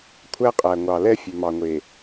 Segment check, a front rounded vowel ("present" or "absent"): present